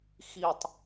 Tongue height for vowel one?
high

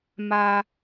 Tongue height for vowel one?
low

